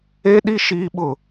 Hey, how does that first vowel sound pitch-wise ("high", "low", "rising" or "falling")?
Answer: high